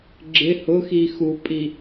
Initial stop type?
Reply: click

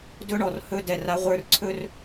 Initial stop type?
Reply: plain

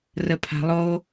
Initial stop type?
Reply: aspirated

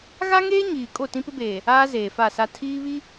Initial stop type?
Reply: ejective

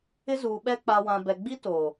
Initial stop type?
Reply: implosive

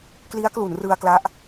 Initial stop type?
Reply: plain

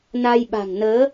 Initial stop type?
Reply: implosive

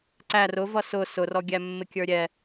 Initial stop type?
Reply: click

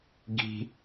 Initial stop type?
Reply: plain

